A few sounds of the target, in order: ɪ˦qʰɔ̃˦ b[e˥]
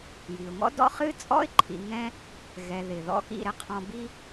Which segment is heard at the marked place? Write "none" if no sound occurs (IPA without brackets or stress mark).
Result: i˥